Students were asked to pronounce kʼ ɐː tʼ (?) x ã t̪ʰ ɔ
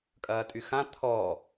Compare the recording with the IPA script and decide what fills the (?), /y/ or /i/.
y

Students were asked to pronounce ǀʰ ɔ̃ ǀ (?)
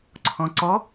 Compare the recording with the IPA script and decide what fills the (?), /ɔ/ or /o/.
ɔ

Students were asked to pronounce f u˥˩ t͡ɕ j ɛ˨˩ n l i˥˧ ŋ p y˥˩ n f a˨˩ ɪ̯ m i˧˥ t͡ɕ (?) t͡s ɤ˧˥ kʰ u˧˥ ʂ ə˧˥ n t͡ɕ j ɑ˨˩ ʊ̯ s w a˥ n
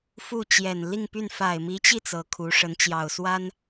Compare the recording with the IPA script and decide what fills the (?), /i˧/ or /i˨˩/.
i˧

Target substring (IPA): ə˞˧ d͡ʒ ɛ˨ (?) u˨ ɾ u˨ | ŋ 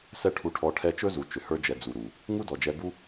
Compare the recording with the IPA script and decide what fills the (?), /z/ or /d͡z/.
d͡z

